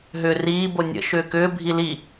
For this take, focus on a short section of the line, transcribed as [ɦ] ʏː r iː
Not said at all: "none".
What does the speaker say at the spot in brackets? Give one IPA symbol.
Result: ɦ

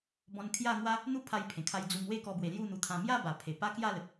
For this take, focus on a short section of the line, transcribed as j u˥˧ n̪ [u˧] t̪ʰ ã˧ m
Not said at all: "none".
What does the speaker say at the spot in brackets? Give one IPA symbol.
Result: u˧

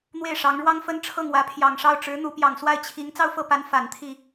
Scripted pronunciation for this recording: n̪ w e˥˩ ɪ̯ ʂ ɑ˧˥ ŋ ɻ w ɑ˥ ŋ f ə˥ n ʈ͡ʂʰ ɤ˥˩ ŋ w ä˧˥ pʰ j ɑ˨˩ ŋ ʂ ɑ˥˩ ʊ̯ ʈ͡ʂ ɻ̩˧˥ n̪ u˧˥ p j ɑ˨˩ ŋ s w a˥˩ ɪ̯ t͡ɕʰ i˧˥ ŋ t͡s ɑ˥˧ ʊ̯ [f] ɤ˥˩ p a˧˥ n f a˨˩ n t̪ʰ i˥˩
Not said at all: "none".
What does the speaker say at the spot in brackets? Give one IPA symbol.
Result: f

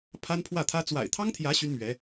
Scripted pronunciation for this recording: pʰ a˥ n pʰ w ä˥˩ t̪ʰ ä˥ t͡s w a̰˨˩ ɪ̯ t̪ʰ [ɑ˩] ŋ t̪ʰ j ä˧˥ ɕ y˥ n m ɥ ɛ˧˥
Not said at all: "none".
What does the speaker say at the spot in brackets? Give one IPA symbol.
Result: ɑ˥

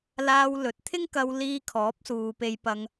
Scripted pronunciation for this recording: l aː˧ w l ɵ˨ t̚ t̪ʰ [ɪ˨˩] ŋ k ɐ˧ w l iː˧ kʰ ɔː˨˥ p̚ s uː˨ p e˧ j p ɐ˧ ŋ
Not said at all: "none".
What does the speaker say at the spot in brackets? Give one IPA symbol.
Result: ɪ˥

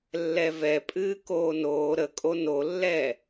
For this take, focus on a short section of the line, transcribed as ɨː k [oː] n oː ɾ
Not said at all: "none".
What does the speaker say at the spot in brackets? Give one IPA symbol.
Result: oː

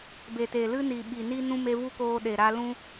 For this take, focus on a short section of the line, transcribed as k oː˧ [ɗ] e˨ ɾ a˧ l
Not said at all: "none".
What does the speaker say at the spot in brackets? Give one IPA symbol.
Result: ɗ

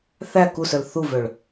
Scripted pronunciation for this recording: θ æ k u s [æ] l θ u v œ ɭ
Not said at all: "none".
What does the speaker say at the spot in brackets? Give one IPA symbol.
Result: œ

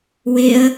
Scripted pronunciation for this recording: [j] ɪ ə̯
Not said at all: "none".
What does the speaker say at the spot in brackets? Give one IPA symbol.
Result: w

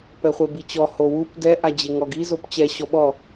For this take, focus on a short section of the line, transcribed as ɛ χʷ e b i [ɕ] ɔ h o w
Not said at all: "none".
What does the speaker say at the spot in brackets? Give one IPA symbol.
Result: t͡ɕ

